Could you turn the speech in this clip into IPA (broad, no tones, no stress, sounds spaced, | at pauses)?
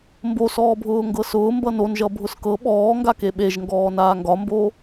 m b o s ɔː bʱ ʊː ŋ ɡ ɤ s ʊː m b ʌ n o n ʒ ʌ bʱ ʊ s k ɤ ɓ ɔː ŋ ɡ a k e ɓ e ʒ ŋ ɡ ɔː n aː ŋ ɡ ɒ m b o